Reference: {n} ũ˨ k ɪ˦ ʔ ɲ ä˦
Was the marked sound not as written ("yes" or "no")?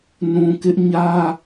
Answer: no